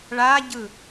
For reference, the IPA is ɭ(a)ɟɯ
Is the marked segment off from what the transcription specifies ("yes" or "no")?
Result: no